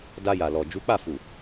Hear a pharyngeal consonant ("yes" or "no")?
no